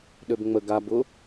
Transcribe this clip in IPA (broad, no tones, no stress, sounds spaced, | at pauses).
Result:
ɗ ø b ŋ͡m ə ɡ a b ʊ